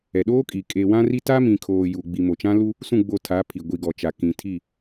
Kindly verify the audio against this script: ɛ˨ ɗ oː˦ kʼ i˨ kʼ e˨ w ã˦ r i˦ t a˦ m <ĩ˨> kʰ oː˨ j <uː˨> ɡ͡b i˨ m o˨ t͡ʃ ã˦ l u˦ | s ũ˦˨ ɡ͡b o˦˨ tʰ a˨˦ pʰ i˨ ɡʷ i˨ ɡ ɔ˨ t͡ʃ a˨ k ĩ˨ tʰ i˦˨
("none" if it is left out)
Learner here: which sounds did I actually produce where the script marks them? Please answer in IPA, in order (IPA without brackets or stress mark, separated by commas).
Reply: ĩ˨, u˨